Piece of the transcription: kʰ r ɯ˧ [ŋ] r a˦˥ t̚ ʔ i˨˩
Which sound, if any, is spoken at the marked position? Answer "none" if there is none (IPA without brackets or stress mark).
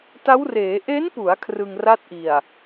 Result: ŋ